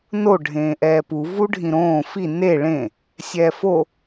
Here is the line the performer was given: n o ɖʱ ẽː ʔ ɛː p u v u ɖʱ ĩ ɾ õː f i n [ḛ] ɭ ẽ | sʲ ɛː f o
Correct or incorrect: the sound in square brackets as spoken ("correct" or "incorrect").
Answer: incorrect